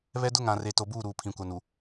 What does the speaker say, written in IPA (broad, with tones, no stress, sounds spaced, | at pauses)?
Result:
β ɛ˦ d ʊ˦ ŋ ã˨ r e˨ t o˨ b uː˦˨ ɾ uː˨ pʰ ĩ˨ kʷ a˨ n u˨